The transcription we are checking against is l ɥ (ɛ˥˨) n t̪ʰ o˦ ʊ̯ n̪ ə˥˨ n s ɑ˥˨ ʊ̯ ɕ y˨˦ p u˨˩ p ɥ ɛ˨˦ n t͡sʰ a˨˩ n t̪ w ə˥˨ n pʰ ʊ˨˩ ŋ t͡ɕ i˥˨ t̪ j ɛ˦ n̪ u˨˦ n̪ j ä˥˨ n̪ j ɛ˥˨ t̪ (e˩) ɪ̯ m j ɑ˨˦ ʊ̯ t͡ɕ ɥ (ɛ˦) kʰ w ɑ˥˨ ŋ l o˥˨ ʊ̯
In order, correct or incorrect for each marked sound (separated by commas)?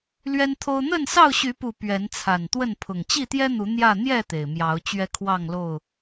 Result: incorrect, correct, correct